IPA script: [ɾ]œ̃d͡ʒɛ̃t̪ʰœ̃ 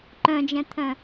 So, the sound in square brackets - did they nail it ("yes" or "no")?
no